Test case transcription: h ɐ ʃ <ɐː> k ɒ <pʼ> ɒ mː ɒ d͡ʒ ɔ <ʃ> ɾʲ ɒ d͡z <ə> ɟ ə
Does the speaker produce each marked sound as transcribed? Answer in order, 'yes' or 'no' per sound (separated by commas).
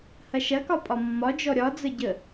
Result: no, yes, no, yes